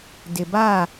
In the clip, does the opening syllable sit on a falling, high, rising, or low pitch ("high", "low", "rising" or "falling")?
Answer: low